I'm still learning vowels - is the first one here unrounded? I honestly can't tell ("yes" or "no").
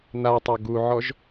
yes